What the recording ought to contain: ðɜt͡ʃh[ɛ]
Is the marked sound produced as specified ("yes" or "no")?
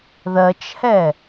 yes